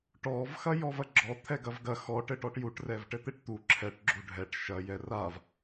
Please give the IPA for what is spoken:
ʈɔv xɐjɔvɐɡ͡ǁɔ t̪ʰɛɡɐvɡɐ xɔ ʈɘʈɔʈjuʈ rɛvʈɘt̪eʈt̪u ǁʰɛʈ ɡ͡ǁuɖʱɛʈ ʃɐ jɛrav

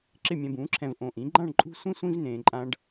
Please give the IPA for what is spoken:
ǁɪ˥˧mʲɛ̃˧bũː˩˥ǁʰɛ̃˧v ʔõ˧ʔĩ˩˥ ɡ͡ǃã˥˧ɳǃʼṳ˥˧sʷĩ˥ sʷĩ˥v nẽː˧ǃʼã˥ɖ

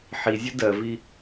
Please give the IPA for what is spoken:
ħizʲə dɜvi

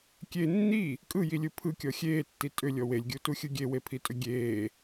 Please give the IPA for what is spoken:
kʲe nːi | kʼɯjilʲɯ pʰɯkʲɔ xʲeːtːi tʼʏlʲɔ welʲɡʲutuxʲɯ ɡʲewepʰitʼʏ ɡʲeː

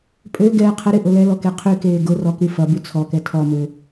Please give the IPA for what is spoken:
pʼø ɡɛːqʰəɾɪ ʔʊlɛlɔ keqʰykeː ɡʊrɔ kyfɐby t͡sʰɔkɛ tʰɔmø

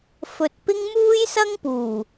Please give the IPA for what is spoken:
fɵ˨t̚pɪ˥ŋ muː˥jsɐ˥ŋpuː˨˩

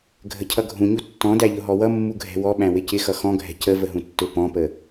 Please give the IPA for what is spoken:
ɡʱəcʰʌɡʱũɲu tːɔ̃dæʎʊ ɦɔwʌ mːuɡʱɛ̤wɔɓæ̃ wɪcɪxʌ xɔ̃ɡʱɛ̤ cə vəɦũtːʊ pɔ̃pə

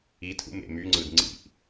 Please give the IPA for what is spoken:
itʰṵ mḛmyŋ͡ǀɯd ŋ͡ǀḭʔ

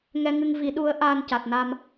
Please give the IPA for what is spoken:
ŋɛ˧ŋɨ˧ŋ vi˨˩˨ɗu˨˩˦ə̯ ʔaː˧nca˨˩t̚na˧m

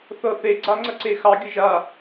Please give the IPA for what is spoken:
θɤθe ɡ͡ǀaŋ͡ǀəǀexɑ ɡʲəʒa

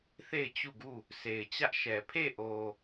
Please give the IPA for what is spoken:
θe˦˨ɪ̯t͡ɕu˦˨ɡu˦˨ | sʰe˨ɪ̯t͡ɕä˦ʔʃɛ˨ pʰe˦˨ʔo˨

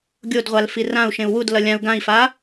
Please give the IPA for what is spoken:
ɡʲodʁʷal firãu̯ ʃẽu̯wud lʌlʲãu̯ ɡãi̯fa

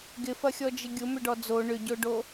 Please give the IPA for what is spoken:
ɡɪfɐxʲɔd͡ʒɪ ɡʲʊ mʏɖɔd͡zo ɳʏɟoɖo

